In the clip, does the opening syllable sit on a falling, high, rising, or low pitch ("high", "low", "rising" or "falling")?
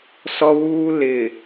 high